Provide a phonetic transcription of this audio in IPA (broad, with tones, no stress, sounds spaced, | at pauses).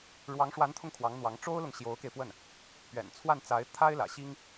ɻ w ɑ˧˥ ŋ ʂ w a˧˥ n t̪ʰ ʊ˧ ŋ kʰ w ɑ˧˥ ŋ n̪ w ɑ˧˥ ŋ ʈ͡ʂ o˥ ʊ̯ l ʊ˨ ŋ ɕ j o˧˥ ʊ̯ k e˧ ɪ̯ p w ə˥˩ n | p ɥ ɛ̰˨˩ n t͡sʰ w a˥˩ n t͡s a˧˥ ɪ̯ t̪ʰ a˥ ɪ̯ l ä̰˨˩ ɕ i˥ ŋ